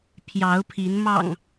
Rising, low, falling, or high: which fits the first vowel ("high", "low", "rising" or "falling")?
rising